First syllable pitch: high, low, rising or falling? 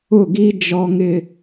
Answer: falling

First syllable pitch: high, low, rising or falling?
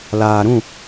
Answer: low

